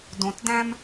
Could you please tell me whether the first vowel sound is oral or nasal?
nasal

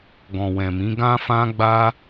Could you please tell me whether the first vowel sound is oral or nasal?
nasal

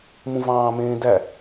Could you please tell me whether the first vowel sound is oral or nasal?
nasal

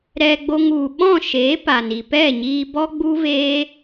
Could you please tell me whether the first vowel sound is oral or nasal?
oral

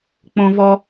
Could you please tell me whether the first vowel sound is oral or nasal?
nasal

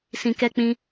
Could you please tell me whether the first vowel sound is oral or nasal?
nasal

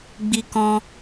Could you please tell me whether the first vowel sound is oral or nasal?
oral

